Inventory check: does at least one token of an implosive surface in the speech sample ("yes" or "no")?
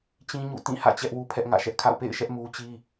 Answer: no